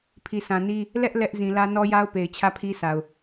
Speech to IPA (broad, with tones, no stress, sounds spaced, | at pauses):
pʰ i˨ sʰ ã˨ n i˦ | l ɛ˦ ʔ l ɛ˦ ʔ z ĩ˨ l ä˦ n ɔ˦ j a˦ ʊ̯ p e˨ ɪ̯ t͡ɕʰ ä˦˨ pʰ i˦ s a˨ ʊ̯